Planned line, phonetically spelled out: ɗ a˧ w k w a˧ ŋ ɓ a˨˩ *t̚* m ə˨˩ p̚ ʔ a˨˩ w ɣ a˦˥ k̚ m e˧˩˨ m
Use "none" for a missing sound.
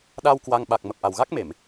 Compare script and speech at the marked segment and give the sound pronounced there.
k̚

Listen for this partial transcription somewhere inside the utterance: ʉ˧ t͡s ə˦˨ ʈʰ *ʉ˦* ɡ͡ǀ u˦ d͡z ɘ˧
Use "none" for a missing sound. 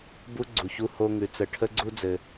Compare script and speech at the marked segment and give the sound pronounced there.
ə˦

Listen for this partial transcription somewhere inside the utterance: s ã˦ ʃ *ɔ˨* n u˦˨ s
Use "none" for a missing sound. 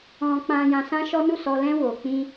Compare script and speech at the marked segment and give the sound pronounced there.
ɔ˦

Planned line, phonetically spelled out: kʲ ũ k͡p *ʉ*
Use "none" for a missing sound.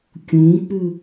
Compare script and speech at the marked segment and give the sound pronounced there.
ʉ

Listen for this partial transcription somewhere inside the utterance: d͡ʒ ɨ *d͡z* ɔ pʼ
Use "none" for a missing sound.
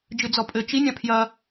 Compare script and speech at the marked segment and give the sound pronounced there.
d͡z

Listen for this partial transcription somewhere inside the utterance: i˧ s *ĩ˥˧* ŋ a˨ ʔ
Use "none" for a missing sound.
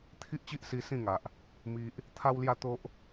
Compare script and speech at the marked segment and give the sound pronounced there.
ĩ˥˧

